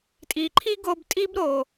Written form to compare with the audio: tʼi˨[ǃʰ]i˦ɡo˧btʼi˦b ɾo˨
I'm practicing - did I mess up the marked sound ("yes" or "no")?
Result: no